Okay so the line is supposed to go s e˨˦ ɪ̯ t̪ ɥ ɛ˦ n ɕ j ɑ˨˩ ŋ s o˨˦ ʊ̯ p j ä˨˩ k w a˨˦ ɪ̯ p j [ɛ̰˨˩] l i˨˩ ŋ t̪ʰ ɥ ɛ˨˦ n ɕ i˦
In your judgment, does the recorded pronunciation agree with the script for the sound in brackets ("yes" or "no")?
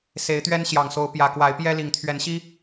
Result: no